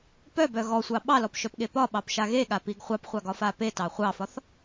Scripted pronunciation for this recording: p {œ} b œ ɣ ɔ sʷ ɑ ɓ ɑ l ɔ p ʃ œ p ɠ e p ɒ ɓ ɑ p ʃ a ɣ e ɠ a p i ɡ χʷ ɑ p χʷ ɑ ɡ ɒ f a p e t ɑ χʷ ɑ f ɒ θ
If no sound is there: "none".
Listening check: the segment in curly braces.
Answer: œ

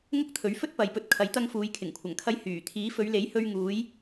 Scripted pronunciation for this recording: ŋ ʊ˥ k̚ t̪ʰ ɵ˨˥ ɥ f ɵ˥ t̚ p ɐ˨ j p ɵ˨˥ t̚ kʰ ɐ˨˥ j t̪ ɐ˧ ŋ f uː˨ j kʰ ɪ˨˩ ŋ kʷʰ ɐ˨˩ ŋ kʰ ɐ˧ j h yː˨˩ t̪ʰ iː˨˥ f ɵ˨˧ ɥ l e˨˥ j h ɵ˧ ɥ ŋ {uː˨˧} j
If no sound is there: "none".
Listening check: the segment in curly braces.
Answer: uː˨˧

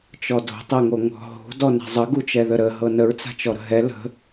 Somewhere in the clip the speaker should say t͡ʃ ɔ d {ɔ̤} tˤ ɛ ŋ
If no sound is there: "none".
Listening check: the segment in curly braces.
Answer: o̤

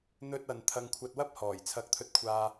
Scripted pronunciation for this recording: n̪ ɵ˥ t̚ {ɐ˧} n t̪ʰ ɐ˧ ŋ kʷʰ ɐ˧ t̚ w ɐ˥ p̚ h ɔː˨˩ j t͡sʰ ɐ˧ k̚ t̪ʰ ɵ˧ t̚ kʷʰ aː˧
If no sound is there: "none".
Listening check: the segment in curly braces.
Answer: ɐ˧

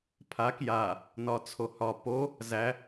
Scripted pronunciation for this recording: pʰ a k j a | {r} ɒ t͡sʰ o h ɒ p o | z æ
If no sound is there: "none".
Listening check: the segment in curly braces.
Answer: n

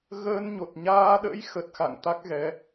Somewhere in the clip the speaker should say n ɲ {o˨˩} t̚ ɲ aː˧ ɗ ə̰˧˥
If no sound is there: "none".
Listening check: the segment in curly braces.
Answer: o˨˩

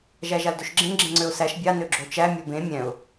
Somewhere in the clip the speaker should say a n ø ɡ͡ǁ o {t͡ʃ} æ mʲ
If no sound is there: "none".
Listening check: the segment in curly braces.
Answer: t͡ʃ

